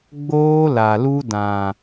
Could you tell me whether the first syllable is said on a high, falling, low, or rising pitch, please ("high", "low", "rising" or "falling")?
high